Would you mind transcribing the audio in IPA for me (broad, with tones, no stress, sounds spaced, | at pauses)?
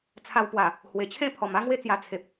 t͡sʰ a˧ w p w a˨˩ | h w e˨˩ t͡ɕʰ ẽ˥˧ pʰ ɔ˨˩ m a˦ ŋ w e˥˧ t͡s j a˧ t͡sʰ e˨ p̚